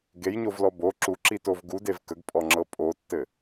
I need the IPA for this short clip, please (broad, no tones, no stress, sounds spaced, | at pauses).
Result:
ɡ e j ɲ o v l ɔ b o ǁ u ǁ i t o v ɡ u d e v k ə ɡ pʼ ɔ ŋ͡ǁ ɤ pʼ o tː ɘ